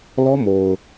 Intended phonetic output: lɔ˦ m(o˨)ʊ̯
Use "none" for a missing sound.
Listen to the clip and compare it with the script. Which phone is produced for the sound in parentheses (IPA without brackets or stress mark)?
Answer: o˨